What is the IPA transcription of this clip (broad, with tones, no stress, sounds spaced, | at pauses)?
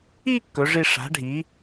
i˦ kː ɵ˨˥ ʐ i˦ ʂ a̤˨˥ ɖʱ i˨˥